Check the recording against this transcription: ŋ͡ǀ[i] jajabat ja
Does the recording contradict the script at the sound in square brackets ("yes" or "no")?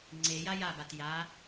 yes